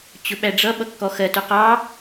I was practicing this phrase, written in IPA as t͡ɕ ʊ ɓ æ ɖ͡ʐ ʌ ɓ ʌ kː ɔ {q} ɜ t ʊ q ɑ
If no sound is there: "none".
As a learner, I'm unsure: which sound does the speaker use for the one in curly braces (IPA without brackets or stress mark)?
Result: x